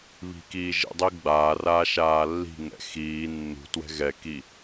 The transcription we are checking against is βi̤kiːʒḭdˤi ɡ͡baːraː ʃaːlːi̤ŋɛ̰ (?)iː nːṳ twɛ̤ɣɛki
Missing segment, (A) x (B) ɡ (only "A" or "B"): A